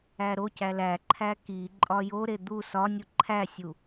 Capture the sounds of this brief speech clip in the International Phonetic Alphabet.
æɾocæ læǃʰæ ki ǃʼɒjoɾe d̪u sɒ nʲuǃʰæsʲu

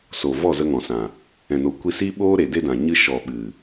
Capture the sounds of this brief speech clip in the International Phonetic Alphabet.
so˨ vɔ˦˨zə˧ ŋɔ̃˨sã˨ | ɛ̃˨no˨ kʷi˧si˦ ɓoː˦ɾe˨ de˦ dã˨ɲɨ˦ ʃɔ˨ɓɨ˨

